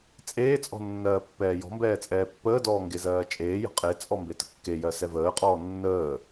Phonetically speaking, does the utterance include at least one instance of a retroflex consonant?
no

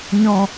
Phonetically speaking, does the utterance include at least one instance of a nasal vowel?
yes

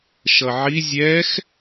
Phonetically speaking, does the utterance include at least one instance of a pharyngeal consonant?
yes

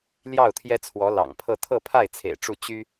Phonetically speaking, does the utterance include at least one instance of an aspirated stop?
yes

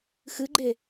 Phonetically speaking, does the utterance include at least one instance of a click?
yes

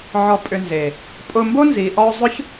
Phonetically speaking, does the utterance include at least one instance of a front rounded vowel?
yes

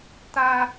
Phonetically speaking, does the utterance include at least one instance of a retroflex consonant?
no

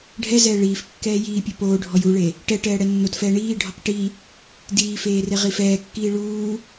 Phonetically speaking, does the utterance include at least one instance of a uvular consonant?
yes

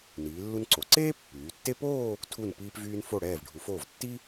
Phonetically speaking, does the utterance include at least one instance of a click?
yes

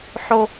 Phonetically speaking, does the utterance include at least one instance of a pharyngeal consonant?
yes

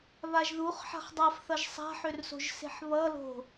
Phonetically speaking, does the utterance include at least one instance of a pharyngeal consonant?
yes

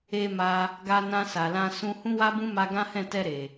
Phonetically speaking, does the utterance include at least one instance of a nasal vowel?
yes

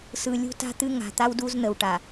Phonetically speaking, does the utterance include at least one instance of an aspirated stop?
no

